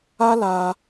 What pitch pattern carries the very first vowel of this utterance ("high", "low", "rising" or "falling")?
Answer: high